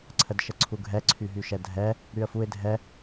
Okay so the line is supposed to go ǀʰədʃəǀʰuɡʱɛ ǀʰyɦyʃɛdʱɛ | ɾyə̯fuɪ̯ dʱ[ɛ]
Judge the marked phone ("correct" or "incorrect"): correct